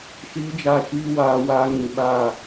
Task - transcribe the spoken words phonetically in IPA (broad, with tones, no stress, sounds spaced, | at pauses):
ʃ iː˦ d͡ʒ a˦˨ ʃ iː˦ w aː˦ w a˦ ŋ ĩ˨ ɓ a˦˨